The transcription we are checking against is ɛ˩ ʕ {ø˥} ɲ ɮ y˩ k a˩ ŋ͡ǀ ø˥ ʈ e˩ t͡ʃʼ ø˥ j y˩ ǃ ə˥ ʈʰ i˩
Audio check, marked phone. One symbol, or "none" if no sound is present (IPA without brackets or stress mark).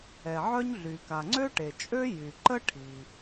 œ˥